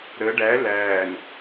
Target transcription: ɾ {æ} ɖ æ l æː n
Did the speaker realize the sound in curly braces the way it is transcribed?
no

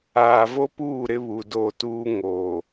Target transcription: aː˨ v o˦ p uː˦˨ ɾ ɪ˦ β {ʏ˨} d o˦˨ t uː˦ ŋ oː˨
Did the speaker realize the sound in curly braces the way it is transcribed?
no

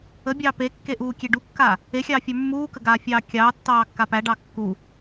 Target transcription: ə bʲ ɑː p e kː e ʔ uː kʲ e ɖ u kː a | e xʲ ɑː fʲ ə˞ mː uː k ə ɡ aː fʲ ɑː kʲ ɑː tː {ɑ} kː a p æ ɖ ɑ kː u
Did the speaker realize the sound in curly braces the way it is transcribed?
no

